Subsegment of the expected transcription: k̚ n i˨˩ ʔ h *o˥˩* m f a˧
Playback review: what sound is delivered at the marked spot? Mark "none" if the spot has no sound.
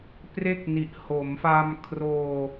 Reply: o˩˦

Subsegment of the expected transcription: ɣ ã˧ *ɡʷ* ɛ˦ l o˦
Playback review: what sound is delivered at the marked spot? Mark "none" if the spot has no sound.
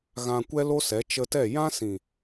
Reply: kʷ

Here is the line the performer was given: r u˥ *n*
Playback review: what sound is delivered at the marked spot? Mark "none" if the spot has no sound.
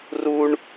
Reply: ɳ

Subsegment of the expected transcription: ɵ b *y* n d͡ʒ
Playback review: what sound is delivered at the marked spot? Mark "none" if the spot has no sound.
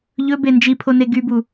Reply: e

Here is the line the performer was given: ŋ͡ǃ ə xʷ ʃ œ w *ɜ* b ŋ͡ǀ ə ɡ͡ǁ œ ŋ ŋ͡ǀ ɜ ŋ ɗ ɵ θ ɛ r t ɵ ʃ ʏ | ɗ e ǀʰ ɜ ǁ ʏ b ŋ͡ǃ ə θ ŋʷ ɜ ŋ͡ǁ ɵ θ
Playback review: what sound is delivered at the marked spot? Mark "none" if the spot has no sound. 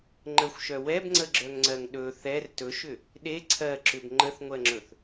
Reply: ɛ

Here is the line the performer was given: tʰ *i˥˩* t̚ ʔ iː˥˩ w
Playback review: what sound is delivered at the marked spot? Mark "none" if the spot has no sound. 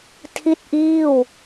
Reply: i˥˩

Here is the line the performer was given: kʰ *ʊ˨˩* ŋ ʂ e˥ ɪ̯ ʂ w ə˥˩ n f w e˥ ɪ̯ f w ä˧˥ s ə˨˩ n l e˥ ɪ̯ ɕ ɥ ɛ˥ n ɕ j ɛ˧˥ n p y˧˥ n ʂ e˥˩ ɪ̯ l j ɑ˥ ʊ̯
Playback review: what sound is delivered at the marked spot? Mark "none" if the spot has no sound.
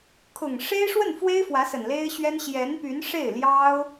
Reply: ʊ˨˩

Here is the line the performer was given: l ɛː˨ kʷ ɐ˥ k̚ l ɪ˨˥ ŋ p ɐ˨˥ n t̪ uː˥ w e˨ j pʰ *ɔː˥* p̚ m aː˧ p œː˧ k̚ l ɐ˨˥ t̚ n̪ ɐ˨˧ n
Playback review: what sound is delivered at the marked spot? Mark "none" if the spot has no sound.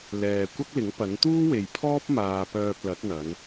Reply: ɔː˥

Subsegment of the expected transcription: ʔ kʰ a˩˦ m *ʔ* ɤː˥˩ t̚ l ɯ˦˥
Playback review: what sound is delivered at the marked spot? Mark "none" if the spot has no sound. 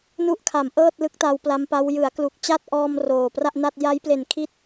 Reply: ʔ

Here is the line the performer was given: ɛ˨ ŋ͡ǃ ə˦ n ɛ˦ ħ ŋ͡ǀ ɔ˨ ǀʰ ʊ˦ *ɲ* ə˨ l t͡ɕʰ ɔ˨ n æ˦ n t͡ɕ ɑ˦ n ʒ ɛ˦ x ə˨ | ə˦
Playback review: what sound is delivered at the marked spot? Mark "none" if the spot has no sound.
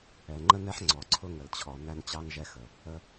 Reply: ŋ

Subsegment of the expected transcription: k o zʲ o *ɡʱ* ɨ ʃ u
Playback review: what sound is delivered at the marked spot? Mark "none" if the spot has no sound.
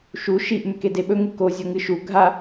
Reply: ŋ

